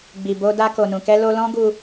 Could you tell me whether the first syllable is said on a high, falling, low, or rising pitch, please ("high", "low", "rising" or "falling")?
low